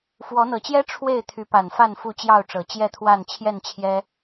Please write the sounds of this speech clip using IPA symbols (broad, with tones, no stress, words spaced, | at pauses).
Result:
fwɔ˨˦n̪ɤ˨˩t͡ɕjɛ˦ ʈ͡ʂʰwe˥˨ɪ̯t̪ʰy˨˦pa˨˩nfa˥˨n fu˥˨t͡ɕjɑ˥˨ʊ̯ʈ͡ʂɤ˨˩ t͡ɕjɛ˥˨t̪ʰwa˥˨n t͡ɕʰjɛ˥˨nt͡ɕʰjɛ˦